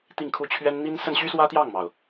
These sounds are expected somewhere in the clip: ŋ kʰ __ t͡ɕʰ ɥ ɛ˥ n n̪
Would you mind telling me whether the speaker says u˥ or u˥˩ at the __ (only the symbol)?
u˥˩